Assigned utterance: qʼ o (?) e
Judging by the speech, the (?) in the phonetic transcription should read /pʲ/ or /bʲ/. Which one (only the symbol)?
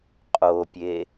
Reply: pʲ